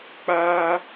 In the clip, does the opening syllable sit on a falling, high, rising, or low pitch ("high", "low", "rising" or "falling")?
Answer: high